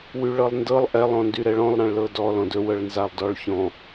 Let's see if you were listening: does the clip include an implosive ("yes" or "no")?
no